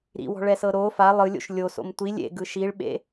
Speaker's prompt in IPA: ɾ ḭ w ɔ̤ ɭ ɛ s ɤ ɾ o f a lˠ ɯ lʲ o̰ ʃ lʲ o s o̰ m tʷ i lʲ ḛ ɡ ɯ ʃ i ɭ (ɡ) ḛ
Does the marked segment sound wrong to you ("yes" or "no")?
yes